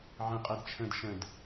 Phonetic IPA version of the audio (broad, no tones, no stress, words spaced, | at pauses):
ʕə̃qʼɛd t͡ʃʰə̃d ʃə̃d